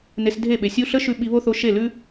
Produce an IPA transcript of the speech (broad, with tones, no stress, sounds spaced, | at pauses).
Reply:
n e˧ s dʱ e˦˨ ɓ e˨ sʲ u˧ ɬ ə˦ ʃ ʉ˦ ɓ i˧ β o˦ θ o˧ ʃ e˦˨ l ʉ˦